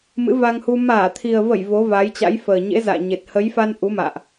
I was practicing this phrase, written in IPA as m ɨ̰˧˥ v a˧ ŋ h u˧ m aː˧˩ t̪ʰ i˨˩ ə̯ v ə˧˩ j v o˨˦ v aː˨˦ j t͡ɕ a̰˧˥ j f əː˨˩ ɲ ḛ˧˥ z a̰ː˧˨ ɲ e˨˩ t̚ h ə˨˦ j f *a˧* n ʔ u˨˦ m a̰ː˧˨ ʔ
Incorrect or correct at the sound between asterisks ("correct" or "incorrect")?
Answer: correct